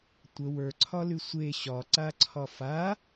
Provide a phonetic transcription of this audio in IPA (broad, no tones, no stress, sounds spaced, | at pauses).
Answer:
tʷ ə w ə˞ ǀʰ ɒ l y sʷ e ɕ ɒ ǀ a ǀʰ ɒ f a